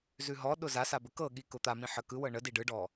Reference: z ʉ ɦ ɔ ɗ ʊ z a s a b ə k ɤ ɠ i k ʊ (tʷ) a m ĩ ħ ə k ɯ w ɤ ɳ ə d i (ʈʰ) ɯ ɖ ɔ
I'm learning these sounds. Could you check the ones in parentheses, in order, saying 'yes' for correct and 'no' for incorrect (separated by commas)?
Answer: no, no